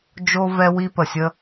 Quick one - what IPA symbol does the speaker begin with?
d͡ʒ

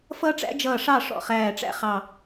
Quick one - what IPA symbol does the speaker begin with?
f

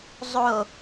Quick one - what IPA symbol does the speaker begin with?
zˤ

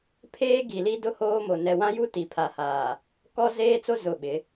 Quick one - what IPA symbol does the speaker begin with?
pʰ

